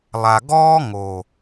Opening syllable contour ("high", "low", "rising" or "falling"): low